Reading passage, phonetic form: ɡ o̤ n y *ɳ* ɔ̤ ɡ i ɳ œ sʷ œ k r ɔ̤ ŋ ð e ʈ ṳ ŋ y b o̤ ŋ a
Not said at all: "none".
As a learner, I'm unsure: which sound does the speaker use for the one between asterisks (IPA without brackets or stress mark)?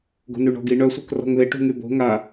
ɳ